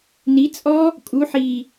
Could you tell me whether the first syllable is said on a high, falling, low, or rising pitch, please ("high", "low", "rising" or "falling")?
rising